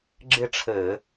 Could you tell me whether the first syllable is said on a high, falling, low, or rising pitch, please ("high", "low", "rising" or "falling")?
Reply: falling